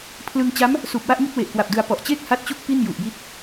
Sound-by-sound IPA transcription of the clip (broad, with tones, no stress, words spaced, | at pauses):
pʰlɯ˧ŋ t͡ɕa˦˥m | suː˨˩p̚wa˥˩ʔŋi˥˩t̚ we˨˩ʔkwa˨˩p̚dɯ˧a̯ pɔ˨˩ʔt͡ɕeː˥˩k̚ ha˦˥t̚t͡ɕu˦˥k̚ pi˥˩nju˨˩ʔji˦˥t̚